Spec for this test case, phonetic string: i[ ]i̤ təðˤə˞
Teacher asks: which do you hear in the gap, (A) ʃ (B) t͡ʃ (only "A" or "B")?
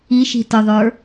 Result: A